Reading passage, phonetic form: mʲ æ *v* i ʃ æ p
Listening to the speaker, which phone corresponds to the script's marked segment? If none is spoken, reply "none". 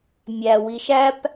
w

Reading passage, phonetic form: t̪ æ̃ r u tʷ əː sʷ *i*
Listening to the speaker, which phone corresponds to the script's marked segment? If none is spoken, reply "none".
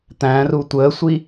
i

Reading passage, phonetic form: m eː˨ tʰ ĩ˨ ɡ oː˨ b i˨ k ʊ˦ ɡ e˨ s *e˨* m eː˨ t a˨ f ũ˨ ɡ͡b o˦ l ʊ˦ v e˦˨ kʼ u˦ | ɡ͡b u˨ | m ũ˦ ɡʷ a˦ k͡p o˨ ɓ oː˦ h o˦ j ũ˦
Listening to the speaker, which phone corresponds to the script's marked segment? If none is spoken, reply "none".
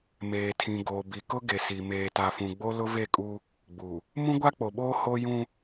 i˨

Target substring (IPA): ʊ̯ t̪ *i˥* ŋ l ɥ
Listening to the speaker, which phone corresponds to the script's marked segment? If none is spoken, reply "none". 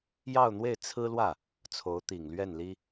i˨˩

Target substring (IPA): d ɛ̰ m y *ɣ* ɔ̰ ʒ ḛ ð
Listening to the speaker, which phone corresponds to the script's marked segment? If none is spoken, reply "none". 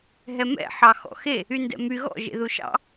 ɣ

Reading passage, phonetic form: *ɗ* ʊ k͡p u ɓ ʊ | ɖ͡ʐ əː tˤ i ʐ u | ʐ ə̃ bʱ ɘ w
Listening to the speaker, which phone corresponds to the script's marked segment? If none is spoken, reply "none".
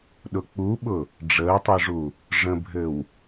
ɗ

